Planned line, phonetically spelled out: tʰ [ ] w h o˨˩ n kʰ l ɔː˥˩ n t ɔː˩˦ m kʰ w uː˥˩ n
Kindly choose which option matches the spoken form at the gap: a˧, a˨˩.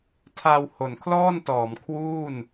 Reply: a˧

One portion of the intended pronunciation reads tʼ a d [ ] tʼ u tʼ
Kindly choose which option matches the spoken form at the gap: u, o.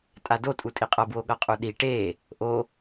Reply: o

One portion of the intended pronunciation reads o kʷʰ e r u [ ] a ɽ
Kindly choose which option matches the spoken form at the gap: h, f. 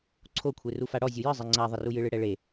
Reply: f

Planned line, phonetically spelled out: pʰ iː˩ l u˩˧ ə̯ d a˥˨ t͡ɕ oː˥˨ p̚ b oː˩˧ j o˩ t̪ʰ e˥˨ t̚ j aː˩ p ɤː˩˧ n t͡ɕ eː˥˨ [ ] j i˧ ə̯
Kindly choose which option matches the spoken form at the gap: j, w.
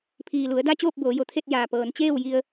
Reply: w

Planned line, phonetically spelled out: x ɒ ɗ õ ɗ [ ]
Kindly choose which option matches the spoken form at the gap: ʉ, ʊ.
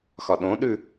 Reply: ʉ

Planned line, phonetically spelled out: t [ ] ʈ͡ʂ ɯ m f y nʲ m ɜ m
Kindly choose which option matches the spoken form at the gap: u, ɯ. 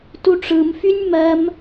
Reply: u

